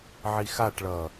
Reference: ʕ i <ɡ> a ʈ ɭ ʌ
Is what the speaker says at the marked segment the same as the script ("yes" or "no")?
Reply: no